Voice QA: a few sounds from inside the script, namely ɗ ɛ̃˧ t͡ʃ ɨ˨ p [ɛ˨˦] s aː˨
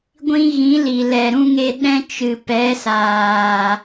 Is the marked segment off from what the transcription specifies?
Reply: no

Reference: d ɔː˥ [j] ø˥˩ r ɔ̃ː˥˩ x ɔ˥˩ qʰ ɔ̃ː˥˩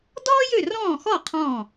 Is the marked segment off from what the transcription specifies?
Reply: no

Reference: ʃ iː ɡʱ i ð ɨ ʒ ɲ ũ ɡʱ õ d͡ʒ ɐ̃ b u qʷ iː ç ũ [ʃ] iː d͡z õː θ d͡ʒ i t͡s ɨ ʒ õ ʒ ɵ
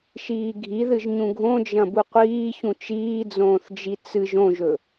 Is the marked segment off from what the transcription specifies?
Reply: yes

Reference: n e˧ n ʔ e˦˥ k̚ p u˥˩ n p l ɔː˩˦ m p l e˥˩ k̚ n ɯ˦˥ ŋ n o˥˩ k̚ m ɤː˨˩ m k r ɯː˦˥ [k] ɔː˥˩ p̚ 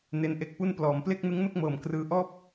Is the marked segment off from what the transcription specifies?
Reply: yes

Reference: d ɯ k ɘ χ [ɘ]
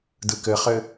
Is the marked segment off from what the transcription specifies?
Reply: no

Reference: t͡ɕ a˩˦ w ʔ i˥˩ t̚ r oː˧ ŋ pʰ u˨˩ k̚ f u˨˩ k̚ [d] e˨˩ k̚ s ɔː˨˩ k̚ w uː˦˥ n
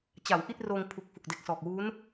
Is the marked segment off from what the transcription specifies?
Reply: no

